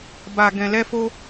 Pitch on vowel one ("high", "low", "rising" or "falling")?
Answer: low